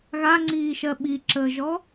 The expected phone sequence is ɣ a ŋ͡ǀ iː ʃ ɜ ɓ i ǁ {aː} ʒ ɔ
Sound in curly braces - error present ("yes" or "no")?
yes